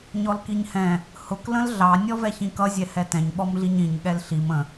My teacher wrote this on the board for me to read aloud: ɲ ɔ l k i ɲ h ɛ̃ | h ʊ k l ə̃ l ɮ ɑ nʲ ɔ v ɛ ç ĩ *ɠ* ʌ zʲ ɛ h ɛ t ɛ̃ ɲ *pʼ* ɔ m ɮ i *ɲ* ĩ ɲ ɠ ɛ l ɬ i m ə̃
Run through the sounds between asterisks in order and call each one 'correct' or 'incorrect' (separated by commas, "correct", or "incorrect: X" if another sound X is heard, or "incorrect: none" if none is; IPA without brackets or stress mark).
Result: incorrect: k, incorrect: ɓ, correct